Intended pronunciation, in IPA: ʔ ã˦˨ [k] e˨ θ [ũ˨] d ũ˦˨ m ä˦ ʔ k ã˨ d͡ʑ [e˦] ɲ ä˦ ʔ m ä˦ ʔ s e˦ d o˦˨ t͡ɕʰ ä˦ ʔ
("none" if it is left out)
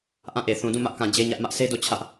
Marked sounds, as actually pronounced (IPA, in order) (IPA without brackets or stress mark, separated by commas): ʔ, ũ˨, e˦